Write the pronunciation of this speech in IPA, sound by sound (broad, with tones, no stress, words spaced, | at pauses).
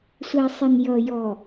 sʷæ˨sˤɪ˨n jʌ˨ jɔ˨